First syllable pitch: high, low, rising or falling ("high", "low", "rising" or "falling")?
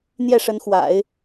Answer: falling